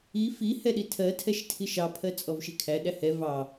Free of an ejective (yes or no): no